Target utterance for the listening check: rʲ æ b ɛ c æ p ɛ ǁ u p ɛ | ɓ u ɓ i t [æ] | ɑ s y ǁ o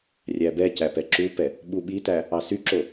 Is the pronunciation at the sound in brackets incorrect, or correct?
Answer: correct